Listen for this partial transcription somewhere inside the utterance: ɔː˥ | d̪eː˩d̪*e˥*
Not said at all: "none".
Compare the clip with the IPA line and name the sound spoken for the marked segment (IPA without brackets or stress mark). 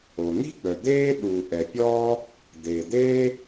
eː˥